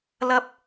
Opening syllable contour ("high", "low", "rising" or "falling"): high